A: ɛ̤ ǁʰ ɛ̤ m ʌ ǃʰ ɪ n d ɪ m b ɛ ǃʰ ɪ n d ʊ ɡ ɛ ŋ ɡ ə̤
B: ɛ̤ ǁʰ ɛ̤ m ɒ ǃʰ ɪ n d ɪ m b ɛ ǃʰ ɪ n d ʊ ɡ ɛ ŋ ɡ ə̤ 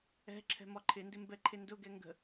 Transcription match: B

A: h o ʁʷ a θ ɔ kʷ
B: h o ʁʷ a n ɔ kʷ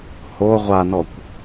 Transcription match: B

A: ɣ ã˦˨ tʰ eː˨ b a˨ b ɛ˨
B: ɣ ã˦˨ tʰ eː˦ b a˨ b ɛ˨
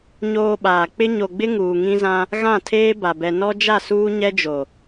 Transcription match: B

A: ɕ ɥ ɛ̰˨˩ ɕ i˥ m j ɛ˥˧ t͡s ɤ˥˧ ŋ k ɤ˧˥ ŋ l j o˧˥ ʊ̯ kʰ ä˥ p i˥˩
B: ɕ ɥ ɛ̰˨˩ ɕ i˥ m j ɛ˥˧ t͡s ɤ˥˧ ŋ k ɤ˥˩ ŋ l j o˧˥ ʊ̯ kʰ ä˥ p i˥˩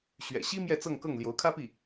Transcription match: B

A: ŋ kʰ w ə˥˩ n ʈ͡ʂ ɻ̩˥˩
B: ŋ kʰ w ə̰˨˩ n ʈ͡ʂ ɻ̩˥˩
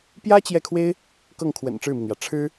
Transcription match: B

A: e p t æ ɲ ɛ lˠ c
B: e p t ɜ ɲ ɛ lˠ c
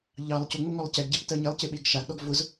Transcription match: B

